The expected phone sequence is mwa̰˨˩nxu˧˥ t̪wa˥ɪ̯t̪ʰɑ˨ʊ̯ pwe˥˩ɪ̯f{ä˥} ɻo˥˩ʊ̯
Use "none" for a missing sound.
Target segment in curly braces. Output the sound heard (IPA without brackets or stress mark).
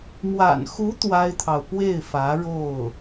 ä˧˥